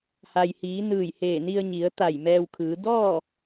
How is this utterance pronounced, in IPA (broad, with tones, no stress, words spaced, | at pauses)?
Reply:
ha˩jhiː˩˧nɯː˧˩jheː˧˩ ni˧ə̯ɲi˩˧ə̯t̪a˧˩j mɛː˧wkʰɯː˩˧ dɔː˥˨